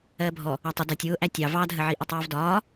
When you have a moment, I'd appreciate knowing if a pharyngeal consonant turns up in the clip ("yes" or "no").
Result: yes